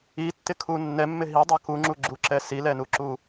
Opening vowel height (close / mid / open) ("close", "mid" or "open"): close